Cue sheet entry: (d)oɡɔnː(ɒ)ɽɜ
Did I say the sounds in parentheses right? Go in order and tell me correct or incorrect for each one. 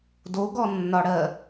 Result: correct, correct

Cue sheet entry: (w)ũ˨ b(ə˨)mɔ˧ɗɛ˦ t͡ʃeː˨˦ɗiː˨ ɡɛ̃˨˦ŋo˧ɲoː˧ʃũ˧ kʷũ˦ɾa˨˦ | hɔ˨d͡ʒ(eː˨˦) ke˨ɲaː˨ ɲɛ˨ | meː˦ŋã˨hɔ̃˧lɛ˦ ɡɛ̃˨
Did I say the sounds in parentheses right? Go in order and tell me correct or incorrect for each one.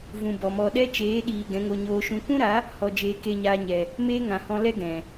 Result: incorrect, incorrect, incorrect

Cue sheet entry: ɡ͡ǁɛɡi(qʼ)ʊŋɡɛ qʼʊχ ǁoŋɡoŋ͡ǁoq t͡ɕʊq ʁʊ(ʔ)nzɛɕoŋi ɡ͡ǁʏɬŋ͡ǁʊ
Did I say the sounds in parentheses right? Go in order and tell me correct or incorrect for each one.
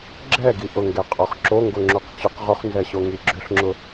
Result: incorrect, incorrect

